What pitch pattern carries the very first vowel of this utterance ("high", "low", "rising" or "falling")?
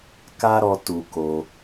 high